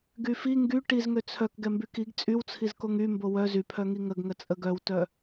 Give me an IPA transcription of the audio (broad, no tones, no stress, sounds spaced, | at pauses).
ɡ y f i ŋ ɡ y ʈ i z ŋ ø t͡sʰ œ k ɡ ɛ m b y k i ɡ t͡sʼ y w t͡sʰ i z k o ŋ y m b o w œ z y pʰ œ ŋ i ŋ ə ɡ ŋ ə t͡sʼ ə ɡ œ w t œ